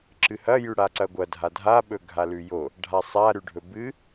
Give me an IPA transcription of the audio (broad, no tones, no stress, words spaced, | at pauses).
ǁɨhɐ jʉɽaǀɐɡʷɐ dʱadʱa ɓɵɡʱalʉjo | ɖʱasˤa ɾʉɖʱɵbɨ